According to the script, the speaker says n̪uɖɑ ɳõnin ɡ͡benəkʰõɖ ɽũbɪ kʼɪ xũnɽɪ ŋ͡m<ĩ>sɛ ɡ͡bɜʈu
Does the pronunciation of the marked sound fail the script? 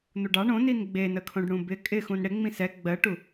no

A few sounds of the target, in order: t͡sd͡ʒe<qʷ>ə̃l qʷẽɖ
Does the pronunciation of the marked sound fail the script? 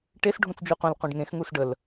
no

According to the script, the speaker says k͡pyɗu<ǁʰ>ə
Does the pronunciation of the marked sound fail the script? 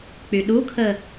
yes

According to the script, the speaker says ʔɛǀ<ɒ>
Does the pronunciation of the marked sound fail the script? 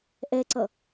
yes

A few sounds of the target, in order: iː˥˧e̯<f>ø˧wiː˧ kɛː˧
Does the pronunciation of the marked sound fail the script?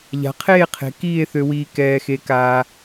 yes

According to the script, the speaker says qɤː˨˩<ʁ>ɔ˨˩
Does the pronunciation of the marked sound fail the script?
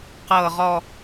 no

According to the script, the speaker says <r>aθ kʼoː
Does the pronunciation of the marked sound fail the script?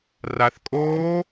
no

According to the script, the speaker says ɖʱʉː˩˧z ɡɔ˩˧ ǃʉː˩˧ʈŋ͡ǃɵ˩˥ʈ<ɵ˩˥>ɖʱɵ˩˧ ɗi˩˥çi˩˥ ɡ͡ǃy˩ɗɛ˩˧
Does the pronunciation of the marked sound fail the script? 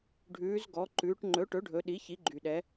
no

